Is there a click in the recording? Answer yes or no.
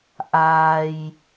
no